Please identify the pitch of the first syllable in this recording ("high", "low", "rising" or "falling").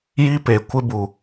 high